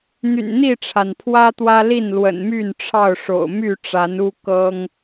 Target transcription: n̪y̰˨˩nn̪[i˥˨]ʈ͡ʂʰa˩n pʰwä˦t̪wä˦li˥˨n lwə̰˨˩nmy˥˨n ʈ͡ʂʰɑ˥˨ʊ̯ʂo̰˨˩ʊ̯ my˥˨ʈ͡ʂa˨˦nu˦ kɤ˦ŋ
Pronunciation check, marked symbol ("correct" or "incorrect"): correct